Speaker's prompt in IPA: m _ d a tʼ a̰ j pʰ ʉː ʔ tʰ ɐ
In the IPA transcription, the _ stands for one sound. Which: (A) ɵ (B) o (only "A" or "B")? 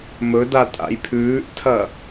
A